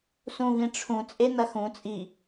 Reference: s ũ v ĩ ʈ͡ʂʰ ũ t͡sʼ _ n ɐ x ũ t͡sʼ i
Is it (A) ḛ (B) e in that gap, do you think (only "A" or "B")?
B